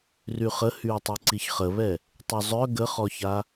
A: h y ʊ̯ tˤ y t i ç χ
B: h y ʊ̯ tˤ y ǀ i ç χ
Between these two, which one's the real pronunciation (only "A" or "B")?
B